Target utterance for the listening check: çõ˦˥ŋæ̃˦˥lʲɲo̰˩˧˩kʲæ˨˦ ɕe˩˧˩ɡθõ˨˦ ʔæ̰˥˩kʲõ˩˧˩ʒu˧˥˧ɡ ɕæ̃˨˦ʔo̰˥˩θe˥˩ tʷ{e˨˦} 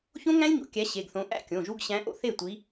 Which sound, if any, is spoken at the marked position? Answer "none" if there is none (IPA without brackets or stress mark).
i˨˦